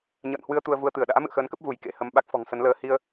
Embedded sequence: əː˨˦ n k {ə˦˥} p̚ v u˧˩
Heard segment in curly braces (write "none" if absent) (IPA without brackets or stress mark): ə˦˥